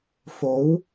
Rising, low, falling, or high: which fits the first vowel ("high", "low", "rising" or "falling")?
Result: rising